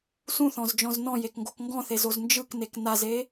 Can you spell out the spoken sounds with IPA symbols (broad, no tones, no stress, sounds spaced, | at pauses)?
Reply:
s ũ θ ɔ̃ z d͡ʒ ɔ̃ z n ɔ̃ j e k ŋ ɡ o k ŋ ɡ ɔ̃ θ e z o z n d͡ʒ ɯ k n e k n a z e